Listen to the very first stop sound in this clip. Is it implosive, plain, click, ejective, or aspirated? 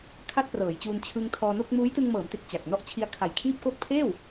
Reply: aspirated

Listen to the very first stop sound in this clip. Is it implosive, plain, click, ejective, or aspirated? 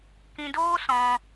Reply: plain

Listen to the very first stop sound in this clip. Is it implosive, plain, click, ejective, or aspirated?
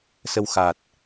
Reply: plain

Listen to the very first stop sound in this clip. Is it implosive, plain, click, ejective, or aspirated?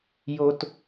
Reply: plain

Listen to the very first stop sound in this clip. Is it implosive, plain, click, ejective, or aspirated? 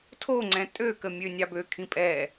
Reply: aspirated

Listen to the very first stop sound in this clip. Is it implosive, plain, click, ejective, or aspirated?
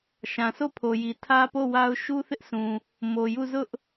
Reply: aspirated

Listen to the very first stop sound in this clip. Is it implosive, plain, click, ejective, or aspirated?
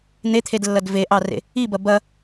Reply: aspirated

